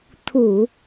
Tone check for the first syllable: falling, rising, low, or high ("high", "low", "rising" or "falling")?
low